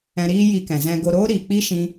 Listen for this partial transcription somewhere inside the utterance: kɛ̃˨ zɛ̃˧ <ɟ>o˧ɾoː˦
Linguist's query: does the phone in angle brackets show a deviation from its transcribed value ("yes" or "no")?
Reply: yes